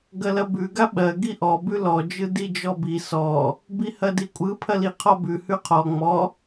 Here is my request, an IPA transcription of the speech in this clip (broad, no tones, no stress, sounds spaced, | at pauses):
ɡ ɐ l ɐ b ʉ ɡ a ɓ ɜ ɡ i ʔ ɔ b ʉ l ɔ d͡ʒ ɯ d i d͡ʒ ɔ b i s ɔ | b i h ɐ d i kʷʼ ɯ pʰ ɐ l i qʰ ɔ b ʉ h ʉ qʰ ɔ ŋ͡m ɔ